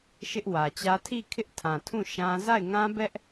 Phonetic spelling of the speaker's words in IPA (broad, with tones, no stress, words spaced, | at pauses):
ʃɪ˦ʔwä˨t͡ɕä˦ tʰi˦˨kʰɪ˦ʔtʰã˨tʰũ˦˨ ʃã˦ za˦˨ɪ̯ŋã˦bɛ˦ʔ